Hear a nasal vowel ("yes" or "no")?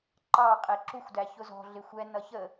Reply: no